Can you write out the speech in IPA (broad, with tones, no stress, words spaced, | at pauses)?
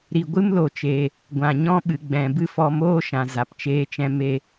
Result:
ɾi˨ɡʷɨ˦mlo˨t͡ʃe˨ | ɡʷã˨ɲɔ̃˦ɓɨ˨ ɡ͡bɛ̃˨bɨ˧ fɔ˧moː˦ ʃã˨za˨pt͡ʃeː˧t͡ʃɛ̃˧ me˧